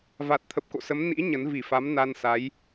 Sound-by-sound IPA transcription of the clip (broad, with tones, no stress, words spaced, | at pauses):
va˨˩t̚t̪ʰə˨˩p̚ ko̰˧˨sə˨˦m nḭ˧˥ ɲə˨˦n vi˧˩fa˨˦m na˧nsa˨˦j